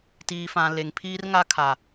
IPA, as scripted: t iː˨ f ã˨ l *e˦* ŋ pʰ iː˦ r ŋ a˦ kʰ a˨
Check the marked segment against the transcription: incorrect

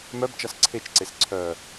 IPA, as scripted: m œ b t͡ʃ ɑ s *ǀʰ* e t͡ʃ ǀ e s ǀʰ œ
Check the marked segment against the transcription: correct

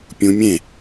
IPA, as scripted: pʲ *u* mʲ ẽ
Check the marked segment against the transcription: incorrect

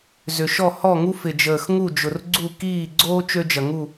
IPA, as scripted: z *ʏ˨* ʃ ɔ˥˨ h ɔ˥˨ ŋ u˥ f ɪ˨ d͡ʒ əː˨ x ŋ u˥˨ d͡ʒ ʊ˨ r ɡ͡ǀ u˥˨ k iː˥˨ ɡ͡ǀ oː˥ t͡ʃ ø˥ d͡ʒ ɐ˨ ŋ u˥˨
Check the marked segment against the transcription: correct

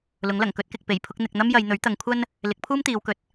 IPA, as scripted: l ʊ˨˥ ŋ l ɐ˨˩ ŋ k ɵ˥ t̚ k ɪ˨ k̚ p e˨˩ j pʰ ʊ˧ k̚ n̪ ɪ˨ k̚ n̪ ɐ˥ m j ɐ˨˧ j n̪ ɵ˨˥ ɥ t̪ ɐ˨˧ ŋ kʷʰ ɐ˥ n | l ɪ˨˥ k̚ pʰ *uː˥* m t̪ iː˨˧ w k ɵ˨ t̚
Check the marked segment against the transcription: correct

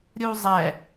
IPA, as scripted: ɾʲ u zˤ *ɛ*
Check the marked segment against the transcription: correct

